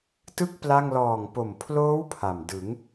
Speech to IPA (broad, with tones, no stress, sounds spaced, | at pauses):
t ɯ˥˩ k̚ p l a˥˩ ŋ l ɔː˨˩ ŋ p o˨˩ m pʰ l oː˦˥ w pʰ a˨˩ m d ɯ˩˦ ŋ